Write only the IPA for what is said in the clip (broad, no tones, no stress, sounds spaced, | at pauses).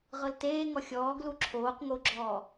ʁ ɤ l t eː ŋ ɔ xʲ ɔː ɡ l u ǁʰ oː q ŋ o ɡ͡ǁ ɔː